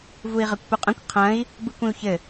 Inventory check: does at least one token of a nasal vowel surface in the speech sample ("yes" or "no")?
yes